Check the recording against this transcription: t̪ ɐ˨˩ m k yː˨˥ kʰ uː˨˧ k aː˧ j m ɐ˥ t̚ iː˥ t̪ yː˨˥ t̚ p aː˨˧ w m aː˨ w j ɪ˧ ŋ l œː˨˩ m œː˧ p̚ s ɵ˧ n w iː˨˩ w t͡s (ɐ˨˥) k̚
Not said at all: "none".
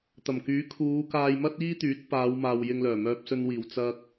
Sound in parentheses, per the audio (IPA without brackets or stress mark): ɐ˧